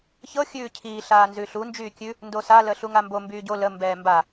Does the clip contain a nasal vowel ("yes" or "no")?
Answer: no